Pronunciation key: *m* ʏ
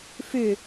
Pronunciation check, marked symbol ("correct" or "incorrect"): incorrect